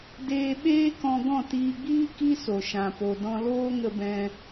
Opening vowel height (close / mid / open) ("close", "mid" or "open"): mid